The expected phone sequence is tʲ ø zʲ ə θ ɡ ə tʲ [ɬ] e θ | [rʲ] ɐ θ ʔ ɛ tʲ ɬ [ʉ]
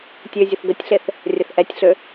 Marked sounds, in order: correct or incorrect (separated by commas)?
correct, correct, incorrect